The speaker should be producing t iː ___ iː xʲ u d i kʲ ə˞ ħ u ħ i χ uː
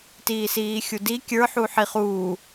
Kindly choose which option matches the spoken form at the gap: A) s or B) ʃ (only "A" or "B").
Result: A